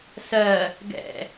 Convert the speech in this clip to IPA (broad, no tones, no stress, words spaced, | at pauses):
sɜ | ɡɛ̰